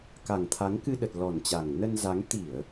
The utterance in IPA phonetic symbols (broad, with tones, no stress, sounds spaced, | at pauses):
k a˨˩ ŋ t̪ʰ a˨˦ ŋ k ɨ˧ ɗ ə˨˩ t̚ l ɔ˨˩ n t͡ɕ a˨˩ ŋ n ə˧ n z a˨˦ ŋ t̪ i˧˩˨ ə̯